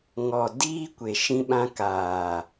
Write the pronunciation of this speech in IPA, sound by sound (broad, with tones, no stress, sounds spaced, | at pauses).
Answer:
ŋ ɔ˨ d iː˦ kʷ e˨ ʃ ĩ˧ ɓ ã˧ k aː˨